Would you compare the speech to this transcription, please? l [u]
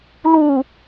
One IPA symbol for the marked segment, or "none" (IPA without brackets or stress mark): u